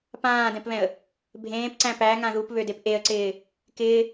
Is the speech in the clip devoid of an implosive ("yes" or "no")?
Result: yes